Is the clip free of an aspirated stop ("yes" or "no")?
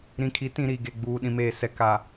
no